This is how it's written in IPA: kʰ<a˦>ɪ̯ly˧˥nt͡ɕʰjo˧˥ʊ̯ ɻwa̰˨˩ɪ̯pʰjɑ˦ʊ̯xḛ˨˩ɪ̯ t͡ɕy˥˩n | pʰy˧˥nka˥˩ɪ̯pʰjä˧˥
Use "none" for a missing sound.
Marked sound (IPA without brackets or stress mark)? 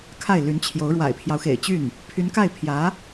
a˥˩